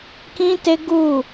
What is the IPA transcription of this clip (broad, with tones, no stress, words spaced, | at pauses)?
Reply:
kĩ˦te˦ɡu˦˨